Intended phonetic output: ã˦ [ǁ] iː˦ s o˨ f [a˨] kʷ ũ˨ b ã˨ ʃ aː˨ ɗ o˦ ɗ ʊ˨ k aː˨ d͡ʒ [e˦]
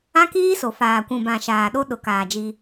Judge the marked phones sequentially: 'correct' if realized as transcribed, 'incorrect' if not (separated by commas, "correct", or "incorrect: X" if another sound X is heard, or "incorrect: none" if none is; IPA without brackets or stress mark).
incorrect: k, incorrect: aː˨, incorrect: i˦